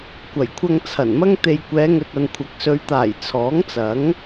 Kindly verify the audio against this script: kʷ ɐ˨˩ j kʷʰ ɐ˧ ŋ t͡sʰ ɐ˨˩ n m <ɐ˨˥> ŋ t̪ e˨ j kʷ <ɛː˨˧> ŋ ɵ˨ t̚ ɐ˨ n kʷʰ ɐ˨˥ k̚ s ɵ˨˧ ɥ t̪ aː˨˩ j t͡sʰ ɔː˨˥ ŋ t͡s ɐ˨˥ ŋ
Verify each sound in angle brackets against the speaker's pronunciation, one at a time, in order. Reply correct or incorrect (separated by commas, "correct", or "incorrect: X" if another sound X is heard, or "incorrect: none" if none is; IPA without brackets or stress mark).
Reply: incorrect: ɐ˥, correct